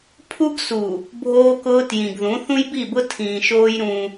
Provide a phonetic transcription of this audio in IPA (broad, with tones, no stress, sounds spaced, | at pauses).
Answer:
pʰ u˦ ɡ s u˨ | bʱ oː˦ k ʊː˦ t j ĩ˨ ɡ ð ũ˨˦ θ ũ˦ j b i˦˨ b ʊ˦ tʰ ĩː˨ ʃ oː˦ j ɾ ũ˦